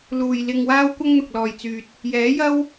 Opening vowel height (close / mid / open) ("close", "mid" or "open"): close